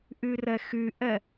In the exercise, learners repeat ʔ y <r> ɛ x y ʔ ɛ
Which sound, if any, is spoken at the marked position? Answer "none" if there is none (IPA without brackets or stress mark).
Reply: r